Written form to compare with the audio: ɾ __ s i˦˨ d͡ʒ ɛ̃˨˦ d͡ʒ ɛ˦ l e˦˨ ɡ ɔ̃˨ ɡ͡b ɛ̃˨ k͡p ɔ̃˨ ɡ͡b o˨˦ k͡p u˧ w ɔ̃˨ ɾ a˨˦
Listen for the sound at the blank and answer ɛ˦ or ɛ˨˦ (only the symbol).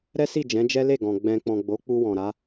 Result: ɛ˦